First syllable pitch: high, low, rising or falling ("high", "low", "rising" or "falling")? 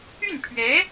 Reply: falling